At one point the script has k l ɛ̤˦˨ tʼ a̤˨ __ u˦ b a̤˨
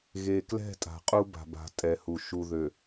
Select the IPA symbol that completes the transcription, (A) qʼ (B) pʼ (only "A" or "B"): A